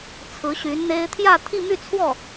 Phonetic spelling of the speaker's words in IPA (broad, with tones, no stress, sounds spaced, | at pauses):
t͡sʰ ɹ̩˧˥ ɕ y˧˥ n n̪ e˥ ɪ̯ t̪ʰ j ä˥˧ t̪ʰ i˥˧ m y˥˧ t͡sʰ w ɔ˥˩